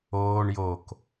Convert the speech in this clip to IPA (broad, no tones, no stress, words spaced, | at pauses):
oːɳ jok